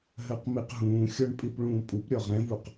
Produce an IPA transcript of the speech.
ɦɜqmiqɦũːxʲɔɳ pʼipɭũːpʼupɾʲɔ ʁɛ̃vuq

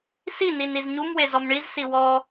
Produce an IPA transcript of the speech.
sinin izɲumwe zɔmɳizsi wɔ

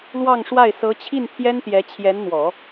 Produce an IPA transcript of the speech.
lwɑ˥˧ŋʂwa˥˩ɪ̯ sɤ˧˥t͡ɕʰi˥˩n t̪ʰjɛ˥nt̪jɛ˧˥ t͡ɕʰjɛ˧˥nn̪wɔ˨˩˦

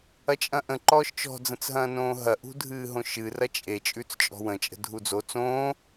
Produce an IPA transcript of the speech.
ɐt͡ʃʼɐ̃ʔə̃ ǃɔːʃt͡ʃɔ̤ d͡zə̃t͡sɦɐ̃ːnõːɦɐ ʔṳdʱɨːɦõʃɨ rɐt͡ʃʼe t͡ʃʼʉt͡st͡ʃʼɔ̤wə̃ t͡ʃʼə̤dʱud͡zo t͡sõː

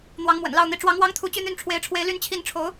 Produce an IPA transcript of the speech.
n̪wɑ˧˥ŋmwə̰˨˩nlɑ˥˩ʊ̯n̪i˧˥ ʈ͡ʂwɑ˧˥ŋwɑ˥ŋt̪ʰu˧˥ t͡ɕy˥˧n̪y˥˩nʈ͡ʂʰwe˧˥ɪ̯ʈ͡ʂʰwe˧˥ɪ̯ ly˥˧nt͡ɕʰi˥˩n ʈ͡ʂʰo˧˥ʊ̯

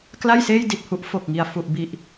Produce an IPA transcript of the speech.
kla˥˩jseː˥˩j di˨˩t̚hu˦˥ʔ fo˨˩k̚ŋi˨˩a̯ fu˨˩ʔ bi˨˩ʔ

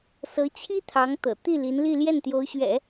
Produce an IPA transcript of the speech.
sɤ˧˥t͡ɕʰi˥ t̪ʰɑ˧˥ŋt̪ɤ̰˨˩ t̪i˥˩li˧˥nli˥˧ ljɛ˥˩nt̪jo˧˥ʊ̯ɕɥɛ̰˨˩˦

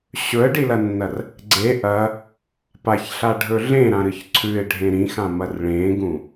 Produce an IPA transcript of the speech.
ɕɵə̯ɖilɐnːɐr | ɡ͡ǀe ʔɐ | paçɬaɖʱɵ ɮẽɾãɾɨç ǀʰʉɪ̯ɖʱẽ ɾĩxãmɐr ɭẽɡũ

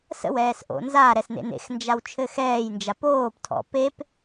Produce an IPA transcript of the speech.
sə̰wɛːs ʔo̰nzaɾɛs nḛnḛxnd͡ʒaw t͡ʃʰɘxɛːjnd͡ʒa poːptʰɔ̰ pep

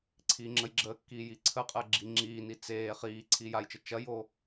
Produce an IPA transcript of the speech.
ǀʰiːŋ͡ǁəjɡ͡ǁəːkːiː jiǀʰəqʼəː ɡ͡ǁiŋ͡ǁiːni t͡seː χiː ǀʰiːjajt͡ʃə t͡ʃɐjo

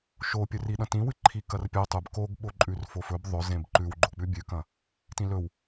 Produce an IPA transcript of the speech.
ʃopʲɵri ɗɐ̃tĩwɨ ǃʰikɐrpʲɵ tˤʉb koɡɓoǃʼʉr fofɵb ðˤɵ zẽbǃʉw ɡ͡ǃok͡pʉbʲʉkɐ̃ | tĩlɵw

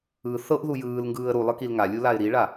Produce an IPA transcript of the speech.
ɯ θɤʔ ðujɯːlŋɡɯːə̯ ɾulˠɯ kilŋalʲu laɪ̯ɾiɭa

